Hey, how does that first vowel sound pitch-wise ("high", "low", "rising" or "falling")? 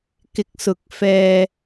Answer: rising